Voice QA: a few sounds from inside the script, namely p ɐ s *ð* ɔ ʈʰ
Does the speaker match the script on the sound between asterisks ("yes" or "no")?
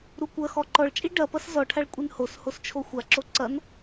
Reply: no